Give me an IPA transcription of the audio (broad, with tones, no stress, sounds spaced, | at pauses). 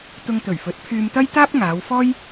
t̪ ʊ˧ ŋ t̪ ɵ˨˩ ɥ f ɵ˨˥ t̚ pʰ yː˧ m t̪ ɐ˥ j t̪ aː˥ p̚ ŋ aː˨˧ w f ɔː˥ j